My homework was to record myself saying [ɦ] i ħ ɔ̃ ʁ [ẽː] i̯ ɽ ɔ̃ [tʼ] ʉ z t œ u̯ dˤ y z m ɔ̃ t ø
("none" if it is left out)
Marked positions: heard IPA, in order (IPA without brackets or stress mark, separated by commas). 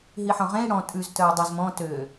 ɦ, ẽ, tʼ